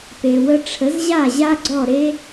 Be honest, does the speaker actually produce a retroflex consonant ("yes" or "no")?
yes